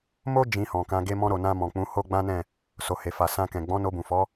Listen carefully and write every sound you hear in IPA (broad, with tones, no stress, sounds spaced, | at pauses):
m o˦ d͡ʒ ĩ˧ h ɔ̃˨ k ã˨˦ ɡ e˧ m ɔ̃˧ ɾ o˨ n ã˧ m ɔ̃˨ k͡p ũ˨˦ h o˦ ɡ͡b ã˦ n ɛ̃˦˨ | s o˨ h e˨ f a˨ s ã˧ k ɛ̃˨ ɡ͡b ɔ̃˨˦ n o˧ b ũ˨ f ɔ˨˦